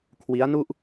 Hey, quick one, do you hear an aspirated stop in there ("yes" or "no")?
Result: yes